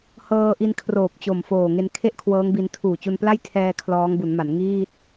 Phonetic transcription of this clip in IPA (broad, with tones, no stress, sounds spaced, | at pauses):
h ɤː˧ ʔ i˧ n kʰ r oː˨˩ p̚ t͡ɕ o˨˩ m f oː˨˩ ŋ e˧ n kʰ e˥˩ ʔ kʰ w ɤː˦˥ ŋ b i˧ n tʰ uː˨˩ t͡ɕ u˧ n p l a˥˩ j tʰ ɛː˧ kʰ l ɔː˦˥ ŋ b u˩˦ n m a˩˦ n ŋ iː˥˩ t̚